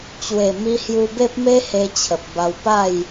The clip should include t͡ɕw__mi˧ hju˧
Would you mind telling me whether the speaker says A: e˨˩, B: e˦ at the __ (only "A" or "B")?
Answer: A